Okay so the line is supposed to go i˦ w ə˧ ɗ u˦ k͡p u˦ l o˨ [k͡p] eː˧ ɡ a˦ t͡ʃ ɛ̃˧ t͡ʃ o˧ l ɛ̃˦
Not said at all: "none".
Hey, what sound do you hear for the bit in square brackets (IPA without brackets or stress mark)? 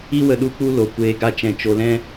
kʷ